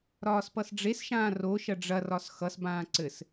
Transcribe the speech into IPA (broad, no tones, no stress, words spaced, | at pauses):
ɾɒːspʌsɖ͡ʐesʃãː roʃɐ ɖ͡ʐɐrɒs xʌsbãː ǀɘs